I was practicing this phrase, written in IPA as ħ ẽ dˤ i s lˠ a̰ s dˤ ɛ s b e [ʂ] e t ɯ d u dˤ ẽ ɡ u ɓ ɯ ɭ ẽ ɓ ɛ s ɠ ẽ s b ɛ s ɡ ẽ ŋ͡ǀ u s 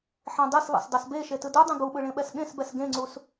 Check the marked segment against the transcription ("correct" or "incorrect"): incorrect